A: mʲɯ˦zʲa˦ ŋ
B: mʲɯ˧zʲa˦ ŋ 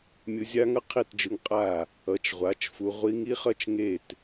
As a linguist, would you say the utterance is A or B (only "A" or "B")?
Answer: B